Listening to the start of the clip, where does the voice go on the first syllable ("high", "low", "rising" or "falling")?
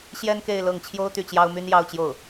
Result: high